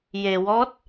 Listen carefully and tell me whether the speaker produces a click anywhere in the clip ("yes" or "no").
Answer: no